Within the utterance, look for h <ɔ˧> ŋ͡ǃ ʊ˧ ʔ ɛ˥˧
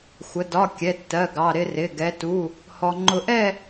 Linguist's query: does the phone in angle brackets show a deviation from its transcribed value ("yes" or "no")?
no